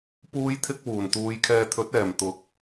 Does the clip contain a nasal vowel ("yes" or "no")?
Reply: no